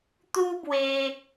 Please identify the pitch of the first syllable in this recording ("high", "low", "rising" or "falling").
high